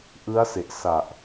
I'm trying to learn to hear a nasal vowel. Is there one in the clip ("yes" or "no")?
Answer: no